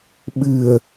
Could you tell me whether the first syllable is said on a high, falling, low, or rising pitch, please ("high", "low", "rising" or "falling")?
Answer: low